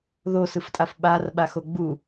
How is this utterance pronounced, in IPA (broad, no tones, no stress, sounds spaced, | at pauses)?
ð o s ɯ f tʼ a f ɓ a r ɓ a x o ɡ͡b u